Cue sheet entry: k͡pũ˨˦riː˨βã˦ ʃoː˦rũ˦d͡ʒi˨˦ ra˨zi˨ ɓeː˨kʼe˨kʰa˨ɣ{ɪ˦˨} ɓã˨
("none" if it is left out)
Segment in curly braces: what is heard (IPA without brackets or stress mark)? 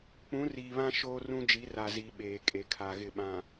ɪ˦˨